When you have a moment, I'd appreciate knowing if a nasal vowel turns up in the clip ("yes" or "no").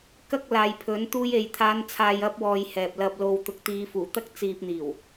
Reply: no